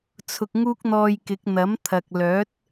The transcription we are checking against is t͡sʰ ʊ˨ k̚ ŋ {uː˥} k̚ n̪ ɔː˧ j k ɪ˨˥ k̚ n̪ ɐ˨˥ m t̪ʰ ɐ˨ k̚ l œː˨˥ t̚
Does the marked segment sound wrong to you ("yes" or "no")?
no